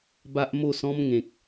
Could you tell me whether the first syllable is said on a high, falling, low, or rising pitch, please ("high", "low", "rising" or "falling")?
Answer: high